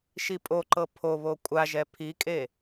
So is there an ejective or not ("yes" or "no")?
yes